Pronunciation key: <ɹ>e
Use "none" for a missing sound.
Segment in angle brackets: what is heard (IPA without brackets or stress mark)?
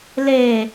l